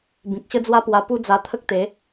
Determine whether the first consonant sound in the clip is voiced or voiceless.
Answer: voiced